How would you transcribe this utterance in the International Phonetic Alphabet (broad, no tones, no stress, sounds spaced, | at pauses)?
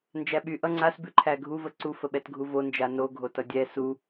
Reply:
n d͡ʒ æ ɓ y ʔ ʌ ŋ͡ǀ a s b ʉ ǃʰ æ ɡʱ u v ə ǀ u f ə ɓ ɛ t ɡʱ u v o n d͡ʒ a n o ɡʱ o t ʌ dʲ ɛ s u